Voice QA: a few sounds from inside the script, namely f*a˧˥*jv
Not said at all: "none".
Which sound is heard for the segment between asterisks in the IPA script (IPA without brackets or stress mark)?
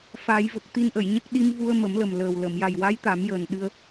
a˨˩˦